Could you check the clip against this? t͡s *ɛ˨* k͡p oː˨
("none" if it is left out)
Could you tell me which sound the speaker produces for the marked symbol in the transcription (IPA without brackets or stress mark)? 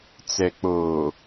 ɛ˨